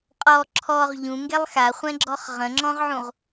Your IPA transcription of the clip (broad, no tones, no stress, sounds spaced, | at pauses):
qʼ ɔ ǁʰ ɔ ʁ ʎ ũ ŋ ɡ ɛ lˠ x a χʷ ɛ̃ ɡ͡ǁ ɔ χ ʁ ə̃ ŋ͡ǁ ɔ̃ ʁ ʕ ũ ʁ